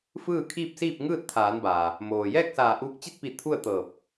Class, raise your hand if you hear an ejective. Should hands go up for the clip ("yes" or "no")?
no